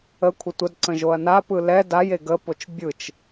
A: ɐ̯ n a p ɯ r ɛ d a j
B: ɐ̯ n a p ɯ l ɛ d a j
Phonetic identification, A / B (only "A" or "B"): B